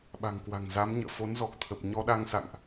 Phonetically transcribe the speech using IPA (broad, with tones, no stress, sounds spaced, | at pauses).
ɓ a̤˨˩ ŋ k w a̤˨˩ ŋ z a˨˦ m ɲ ə̰ː˧˨ f o˨˦ n z ɔ˨˩ k̚ t̪ʰ ə˨˩ p̚ ɲ ɔ˧ ɗ a˧ ŋ s a̰˧˨ ŋ ʔ